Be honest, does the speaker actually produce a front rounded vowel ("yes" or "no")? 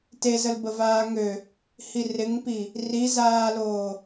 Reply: yes